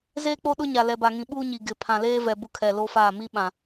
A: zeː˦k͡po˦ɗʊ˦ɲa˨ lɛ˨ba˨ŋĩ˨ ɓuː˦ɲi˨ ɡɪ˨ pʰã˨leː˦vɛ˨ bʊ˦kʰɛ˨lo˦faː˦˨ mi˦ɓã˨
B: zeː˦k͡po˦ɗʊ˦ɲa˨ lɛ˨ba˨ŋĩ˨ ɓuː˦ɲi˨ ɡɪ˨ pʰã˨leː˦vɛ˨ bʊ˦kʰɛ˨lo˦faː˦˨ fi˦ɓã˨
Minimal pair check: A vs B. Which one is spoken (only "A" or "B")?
A